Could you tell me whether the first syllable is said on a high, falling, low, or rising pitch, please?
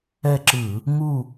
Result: falling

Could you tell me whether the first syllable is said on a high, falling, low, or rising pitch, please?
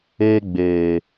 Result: high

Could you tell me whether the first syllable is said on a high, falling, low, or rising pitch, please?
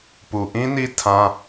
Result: low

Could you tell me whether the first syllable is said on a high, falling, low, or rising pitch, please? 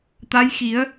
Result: rising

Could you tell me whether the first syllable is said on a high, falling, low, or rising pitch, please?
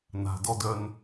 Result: low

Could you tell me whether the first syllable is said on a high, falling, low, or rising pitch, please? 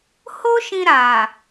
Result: high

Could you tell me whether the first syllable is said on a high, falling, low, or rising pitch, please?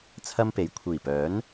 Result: high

